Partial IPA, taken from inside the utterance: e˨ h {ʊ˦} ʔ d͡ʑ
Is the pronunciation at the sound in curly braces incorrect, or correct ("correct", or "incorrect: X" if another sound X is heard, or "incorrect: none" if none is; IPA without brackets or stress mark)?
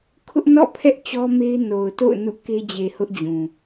correct